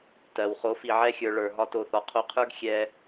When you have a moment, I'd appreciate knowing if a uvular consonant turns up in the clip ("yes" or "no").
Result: yes